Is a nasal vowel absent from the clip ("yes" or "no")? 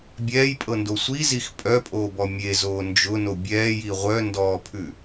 yes